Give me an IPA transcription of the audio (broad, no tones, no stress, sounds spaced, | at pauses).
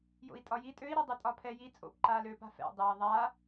j o̰ i̯ tʼ ɒ j i tʼ ø i̯ ɾ ɛ dˤ ø tʼ ɒ pʰ ɛ j i t͡sʼ o̰ p ǃ aː l øː p a̤ f ɛ̰ dˤ ɛ i̯ ðˤ a